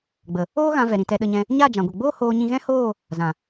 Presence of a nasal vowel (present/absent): present